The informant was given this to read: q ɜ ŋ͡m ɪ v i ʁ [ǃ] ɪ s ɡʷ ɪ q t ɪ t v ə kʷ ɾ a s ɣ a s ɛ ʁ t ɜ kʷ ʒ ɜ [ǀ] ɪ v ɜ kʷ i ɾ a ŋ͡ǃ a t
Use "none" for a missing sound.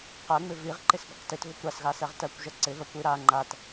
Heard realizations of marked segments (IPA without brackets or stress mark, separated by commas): ǃ, ǀ